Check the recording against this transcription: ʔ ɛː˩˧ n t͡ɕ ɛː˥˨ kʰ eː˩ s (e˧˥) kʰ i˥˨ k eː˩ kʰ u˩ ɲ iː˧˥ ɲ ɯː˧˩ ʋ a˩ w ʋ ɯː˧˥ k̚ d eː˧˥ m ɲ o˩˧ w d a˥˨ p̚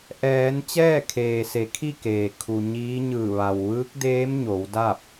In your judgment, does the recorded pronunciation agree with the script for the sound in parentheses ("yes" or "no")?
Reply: no